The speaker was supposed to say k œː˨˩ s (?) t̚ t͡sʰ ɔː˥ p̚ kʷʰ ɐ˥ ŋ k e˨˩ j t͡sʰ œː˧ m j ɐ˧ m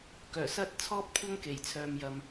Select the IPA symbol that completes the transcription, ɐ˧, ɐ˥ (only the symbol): ɐ˥